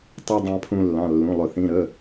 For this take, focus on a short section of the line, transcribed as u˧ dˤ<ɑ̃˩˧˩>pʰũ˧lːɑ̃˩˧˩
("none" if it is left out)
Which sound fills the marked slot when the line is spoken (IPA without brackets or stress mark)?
ɑ̃˧